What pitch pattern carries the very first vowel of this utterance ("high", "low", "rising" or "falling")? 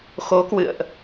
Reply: rising